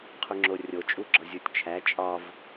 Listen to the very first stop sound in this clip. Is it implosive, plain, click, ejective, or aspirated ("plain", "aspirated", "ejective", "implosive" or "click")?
aspirated